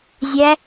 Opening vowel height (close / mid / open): open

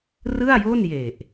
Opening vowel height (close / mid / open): close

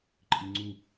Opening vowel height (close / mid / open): close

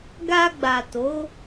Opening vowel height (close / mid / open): open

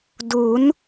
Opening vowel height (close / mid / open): close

